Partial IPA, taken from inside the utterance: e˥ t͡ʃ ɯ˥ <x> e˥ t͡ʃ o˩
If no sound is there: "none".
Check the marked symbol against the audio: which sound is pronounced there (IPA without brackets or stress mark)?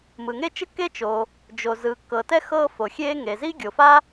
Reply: kː